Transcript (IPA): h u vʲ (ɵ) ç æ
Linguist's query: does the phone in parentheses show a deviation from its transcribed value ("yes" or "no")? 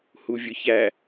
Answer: no